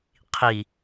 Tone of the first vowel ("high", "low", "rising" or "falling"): low